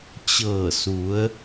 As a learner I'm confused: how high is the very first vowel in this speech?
mid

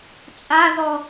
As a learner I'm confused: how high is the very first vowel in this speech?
low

